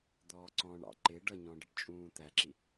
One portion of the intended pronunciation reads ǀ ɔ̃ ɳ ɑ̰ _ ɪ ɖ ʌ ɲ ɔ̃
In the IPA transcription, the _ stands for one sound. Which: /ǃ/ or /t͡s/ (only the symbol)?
ǃ